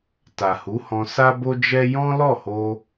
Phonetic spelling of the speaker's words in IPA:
t a˨ h u˨˦ h ɔ̃˧ s a˦ b o˦ d͡ʒ ɛ˦ j ɔ̃˦ l ɔ˦˨ h o˧

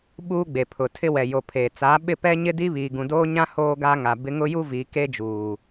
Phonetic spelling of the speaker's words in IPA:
ɓ uː˦ ɡ͡b e˨ pʰ ʊ˨ tʰ ɪ˦ w ɛ˨ j o˨ pʰ eː˨ t͡s aː˨˦ ɓ ɪ˦˨ p ɛ˦ ɲ ɪ˦ d i˦ β iː˨ ɡ ũ˨ d oː˦ ɲ ã˦ h oː˦ ɡ aː˦ ŋ a˨ b ɪ˦ ŋ ʊ˦ j u˦ v i˨˦ k e˦ d͡ʒ uː˨

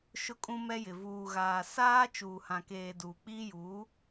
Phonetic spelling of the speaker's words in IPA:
ʃ ʊ˦ kʼ ũ˦ m ɛ˦ j ɪ˨ v uː˨ ɣ aː˨ s aː˦ t͡ʃ uː˨ h ã˨ k eː˨ d uː˨ k͡p iː˦ j uː˨˦

